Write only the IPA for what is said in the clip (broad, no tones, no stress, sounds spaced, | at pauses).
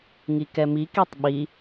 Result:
ŋ i k ɛ m i k i tˤ ɓ i